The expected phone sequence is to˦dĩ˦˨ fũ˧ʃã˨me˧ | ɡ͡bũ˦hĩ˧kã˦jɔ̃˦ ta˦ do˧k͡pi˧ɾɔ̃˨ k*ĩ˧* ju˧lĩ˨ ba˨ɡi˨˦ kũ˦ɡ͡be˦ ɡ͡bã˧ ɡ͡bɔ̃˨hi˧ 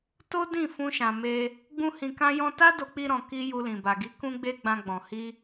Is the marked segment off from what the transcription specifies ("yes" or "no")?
yes